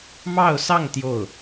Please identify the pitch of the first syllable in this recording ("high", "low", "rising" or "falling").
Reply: falling